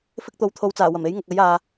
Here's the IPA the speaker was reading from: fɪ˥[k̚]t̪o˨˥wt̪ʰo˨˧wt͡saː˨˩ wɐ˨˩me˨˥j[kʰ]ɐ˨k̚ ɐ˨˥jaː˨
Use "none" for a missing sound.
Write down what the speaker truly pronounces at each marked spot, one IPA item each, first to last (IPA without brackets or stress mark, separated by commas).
k̚, ŋ